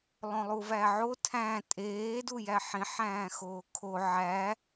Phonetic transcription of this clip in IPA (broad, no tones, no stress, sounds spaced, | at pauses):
lˠ õ lˠ u v æ ʕ o tʰ æ̃ tʼ eː d u j æ ħ ĩ ħ æ̃ː x oː kʰ o ʕ æ